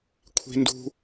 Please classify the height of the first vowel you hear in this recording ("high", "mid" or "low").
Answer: high